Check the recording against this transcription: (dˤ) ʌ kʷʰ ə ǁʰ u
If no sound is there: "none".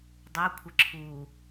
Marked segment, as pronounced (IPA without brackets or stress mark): dˤ